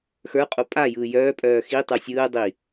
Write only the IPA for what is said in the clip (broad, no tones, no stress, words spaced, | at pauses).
xə˞qʼo pʼajɯː jœːpʼœː xitˤə˞ sʲɯːdˤiː